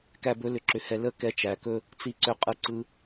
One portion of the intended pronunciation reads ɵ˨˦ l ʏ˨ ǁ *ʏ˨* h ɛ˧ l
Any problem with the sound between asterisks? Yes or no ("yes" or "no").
no